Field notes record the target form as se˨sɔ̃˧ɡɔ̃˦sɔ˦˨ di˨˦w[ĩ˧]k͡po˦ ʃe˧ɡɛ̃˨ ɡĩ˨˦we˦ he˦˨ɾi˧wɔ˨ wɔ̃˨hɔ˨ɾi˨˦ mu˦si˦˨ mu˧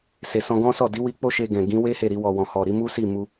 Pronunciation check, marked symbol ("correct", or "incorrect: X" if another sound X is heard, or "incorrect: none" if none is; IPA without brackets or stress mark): incorrect: i˧